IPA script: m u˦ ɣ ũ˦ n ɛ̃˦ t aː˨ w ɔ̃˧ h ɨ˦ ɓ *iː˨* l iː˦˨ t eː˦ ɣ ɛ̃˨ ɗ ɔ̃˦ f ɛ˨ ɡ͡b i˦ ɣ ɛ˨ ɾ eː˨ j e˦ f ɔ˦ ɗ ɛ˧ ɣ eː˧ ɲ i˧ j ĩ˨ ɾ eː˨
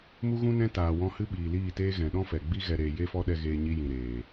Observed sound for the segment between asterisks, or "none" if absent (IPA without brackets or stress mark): iː˨